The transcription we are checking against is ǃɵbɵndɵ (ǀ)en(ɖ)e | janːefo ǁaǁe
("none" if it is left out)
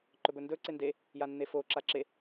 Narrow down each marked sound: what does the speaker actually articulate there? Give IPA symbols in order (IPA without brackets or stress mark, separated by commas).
ǀ, d